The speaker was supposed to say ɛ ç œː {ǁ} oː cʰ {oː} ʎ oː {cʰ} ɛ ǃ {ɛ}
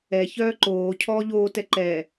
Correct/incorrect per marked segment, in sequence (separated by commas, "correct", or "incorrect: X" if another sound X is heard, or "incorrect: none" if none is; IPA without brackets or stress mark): incorrect: ǃ, incorrect: ɔː, incorrect: t, correct